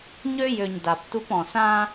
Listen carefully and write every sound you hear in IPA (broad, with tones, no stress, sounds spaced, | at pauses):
ɲ ø˦ j ø˨ ɲ d a˨ p t u˦ p ɔ̃˨ s ã˦